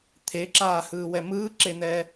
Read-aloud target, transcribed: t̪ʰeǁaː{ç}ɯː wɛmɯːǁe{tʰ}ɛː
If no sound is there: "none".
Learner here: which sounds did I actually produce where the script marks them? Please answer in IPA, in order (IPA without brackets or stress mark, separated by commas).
h, n̪